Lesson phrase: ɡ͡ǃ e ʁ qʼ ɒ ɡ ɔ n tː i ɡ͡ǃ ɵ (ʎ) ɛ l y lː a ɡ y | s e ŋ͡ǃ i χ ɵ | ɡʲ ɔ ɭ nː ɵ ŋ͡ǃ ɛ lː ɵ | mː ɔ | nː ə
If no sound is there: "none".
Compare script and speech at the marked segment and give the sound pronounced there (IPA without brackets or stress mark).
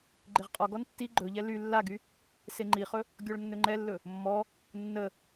ʎ